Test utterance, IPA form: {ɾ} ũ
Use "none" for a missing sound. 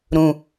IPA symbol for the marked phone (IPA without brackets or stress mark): ɾ